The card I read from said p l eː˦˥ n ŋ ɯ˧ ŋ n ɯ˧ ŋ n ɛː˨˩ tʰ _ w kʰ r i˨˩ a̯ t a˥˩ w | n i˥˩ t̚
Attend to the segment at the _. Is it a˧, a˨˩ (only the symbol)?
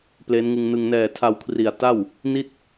a˧